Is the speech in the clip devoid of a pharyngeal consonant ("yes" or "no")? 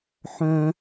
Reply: no